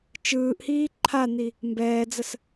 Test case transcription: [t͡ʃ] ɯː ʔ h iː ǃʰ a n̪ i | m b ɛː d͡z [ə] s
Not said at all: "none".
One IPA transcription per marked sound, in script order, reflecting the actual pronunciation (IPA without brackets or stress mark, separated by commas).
t͡ʃ, ə